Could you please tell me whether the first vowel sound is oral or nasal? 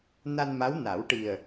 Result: oral